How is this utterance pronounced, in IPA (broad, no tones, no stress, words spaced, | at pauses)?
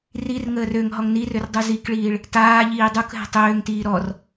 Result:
rirŋəːr øŋ ɦɔŋnirørdˤu zikɭiːɭ | taː ʎiːdˤuk ɦɛ̤tˤøːŋtiː ɾɔr